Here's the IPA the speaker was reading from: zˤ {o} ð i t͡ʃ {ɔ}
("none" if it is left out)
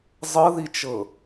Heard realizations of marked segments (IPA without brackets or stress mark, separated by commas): ɤ, ɤ